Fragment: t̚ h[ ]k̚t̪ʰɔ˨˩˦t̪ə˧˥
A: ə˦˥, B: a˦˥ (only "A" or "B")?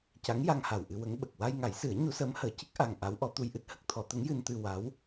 A